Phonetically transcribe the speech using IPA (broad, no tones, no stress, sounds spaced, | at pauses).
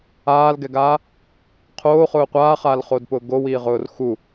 aː l ɡ ɛ ɡ aː | qʰ oː χ ʊː qʷ aː χ aː l χ o d p ʊː ɡ o w iː ʁ ʊː r x u